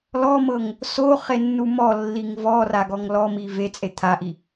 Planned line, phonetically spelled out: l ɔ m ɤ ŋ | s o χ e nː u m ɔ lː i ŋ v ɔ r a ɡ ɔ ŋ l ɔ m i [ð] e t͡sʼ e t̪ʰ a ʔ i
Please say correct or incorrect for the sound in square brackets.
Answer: incorrect